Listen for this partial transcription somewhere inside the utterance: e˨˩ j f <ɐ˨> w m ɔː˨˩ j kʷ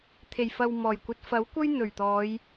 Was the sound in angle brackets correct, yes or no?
yes